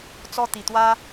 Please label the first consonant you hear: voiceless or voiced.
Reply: voiceless